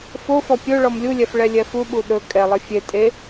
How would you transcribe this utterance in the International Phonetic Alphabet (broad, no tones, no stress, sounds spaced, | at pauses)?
f o f ɔ pʲ ɵ ɭ ɔ m lʲ u lʲ ɛ f ɭ ɛ lʲ ɛ f u ɓ u ɗ ɵ kʼ ɛ lˠ ɘ fʲ e tʼ e